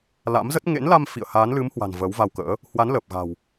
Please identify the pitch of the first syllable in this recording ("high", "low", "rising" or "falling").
rising